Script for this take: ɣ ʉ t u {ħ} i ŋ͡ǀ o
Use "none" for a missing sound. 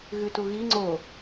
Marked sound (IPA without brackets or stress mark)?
ɣ